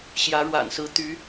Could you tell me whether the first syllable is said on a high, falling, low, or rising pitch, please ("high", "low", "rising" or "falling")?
rising